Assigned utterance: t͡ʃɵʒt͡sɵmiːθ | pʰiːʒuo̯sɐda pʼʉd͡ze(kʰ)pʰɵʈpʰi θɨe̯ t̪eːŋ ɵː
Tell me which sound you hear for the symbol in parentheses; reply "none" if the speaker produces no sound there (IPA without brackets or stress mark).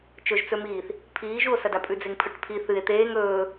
ŋ